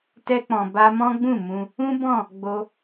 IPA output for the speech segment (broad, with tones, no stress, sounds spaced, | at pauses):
t ɛ˧ k͡p ɔ̃˨ b a˧ m ɔ̃˦ ɡ͡b ũ˦˨ m ũ˧ | ũ˦ b ɔ̃˦˨ | ɡ͡b o˧